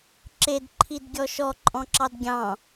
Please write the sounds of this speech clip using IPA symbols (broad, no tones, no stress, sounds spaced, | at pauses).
ǁ e d ǃʰ i d ɡʲ ɔ ʃ ɔ ǃʼ ɔ̃ ǁ ɑ d ɡʲ ɑ̃